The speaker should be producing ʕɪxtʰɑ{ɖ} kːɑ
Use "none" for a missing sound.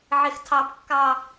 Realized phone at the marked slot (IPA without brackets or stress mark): b